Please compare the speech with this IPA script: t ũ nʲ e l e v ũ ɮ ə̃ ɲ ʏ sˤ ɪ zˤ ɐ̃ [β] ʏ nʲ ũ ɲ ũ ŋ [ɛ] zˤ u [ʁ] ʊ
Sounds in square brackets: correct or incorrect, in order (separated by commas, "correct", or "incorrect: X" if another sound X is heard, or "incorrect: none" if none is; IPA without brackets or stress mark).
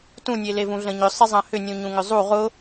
incorrect: h, incorrect: ʏ, correct